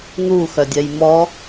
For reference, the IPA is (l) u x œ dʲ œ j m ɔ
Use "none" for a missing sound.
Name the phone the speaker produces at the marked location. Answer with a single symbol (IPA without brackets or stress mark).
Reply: n